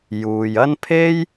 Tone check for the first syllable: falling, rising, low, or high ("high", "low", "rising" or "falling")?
low